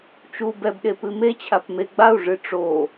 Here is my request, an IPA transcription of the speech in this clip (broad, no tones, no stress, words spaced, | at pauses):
t͡ʃu bɛbɗe pɨmet͡ɕʰap meɡ͡bau̯ʐɨ ʈ͡ʂo